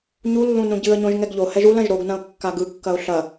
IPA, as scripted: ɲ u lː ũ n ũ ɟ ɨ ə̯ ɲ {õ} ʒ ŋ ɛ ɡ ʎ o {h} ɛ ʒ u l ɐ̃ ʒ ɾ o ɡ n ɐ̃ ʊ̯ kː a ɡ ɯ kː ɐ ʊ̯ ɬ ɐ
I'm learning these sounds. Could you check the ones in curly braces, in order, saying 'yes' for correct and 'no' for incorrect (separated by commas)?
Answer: yes, yes